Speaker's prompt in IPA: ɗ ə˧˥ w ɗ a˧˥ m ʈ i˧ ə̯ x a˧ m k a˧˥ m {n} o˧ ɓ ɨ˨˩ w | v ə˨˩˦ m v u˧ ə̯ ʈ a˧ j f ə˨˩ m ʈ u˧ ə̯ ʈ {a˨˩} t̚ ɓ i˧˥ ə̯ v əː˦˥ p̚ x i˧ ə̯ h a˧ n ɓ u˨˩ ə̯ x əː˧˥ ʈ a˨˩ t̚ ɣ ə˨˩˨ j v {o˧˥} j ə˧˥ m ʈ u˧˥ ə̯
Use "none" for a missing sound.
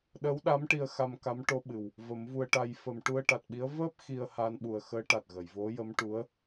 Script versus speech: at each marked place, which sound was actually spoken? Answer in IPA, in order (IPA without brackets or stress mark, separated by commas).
ʈ, a˨˩, o˧˥